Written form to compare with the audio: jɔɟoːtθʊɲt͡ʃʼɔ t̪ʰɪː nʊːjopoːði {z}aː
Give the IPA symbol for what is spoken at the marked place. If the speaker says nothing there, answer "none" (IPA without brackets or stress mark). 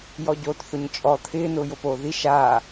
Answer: ʃ